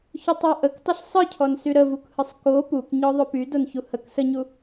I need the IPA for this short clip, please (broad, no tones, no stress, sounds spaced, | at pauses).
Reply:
ç o tˤ ɔ ʔ ə k tˤ ə ɬ sˤ ɯ cʰ ɔ n s y ɾ ə v u k h ɯ sˤ k o p u k ɲ ɔ ðˤ o p y d o n ç u h ə k s ə ɲ u